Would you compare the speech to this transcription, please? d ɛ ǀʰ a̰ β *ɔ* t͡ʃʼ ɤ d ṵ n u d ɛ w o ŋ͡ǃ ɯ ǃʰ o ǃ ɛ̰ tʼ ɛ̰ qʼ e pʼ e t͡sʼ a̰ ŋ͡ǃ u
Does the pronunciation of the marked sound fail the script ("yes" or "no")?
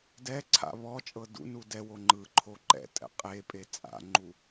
no